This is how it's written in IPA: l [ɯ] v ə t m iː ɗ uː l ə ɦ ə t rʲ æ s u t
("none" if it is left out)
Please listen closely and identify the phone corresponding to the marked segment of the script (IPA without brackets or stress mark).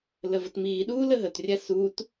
ə